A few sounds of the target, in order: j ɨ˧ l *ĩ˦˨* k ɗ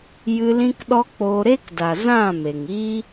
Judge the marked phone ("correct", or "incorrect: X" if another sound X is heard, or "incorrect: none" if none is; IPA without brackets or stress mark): incorrect: ĩ˦